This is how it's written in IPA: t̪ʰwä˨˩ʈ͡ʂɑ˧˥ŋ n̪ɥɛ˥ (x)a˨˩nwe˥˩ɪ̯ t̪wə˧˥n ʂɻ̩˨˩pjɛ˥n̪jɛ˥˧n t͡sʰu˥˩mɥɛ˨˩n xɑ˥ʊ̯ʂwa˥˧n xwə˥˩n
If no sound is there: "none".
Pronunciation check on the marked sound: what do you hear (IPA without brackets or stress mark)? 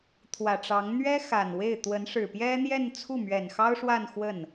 x